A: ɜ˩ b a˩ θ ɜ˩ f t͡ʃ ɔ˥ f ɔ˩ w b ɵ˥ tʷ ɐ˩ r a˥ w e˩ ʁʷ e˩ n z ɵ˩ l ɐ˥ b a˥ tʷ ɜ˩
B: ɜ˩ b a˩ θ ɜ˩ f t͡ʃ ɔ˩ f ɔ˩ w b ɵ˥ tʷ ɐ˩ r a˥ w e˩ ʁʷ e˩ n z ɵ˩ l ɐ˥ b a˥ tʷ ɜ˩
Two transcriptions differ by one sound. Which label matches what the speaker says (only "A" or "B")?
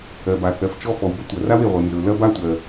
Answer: A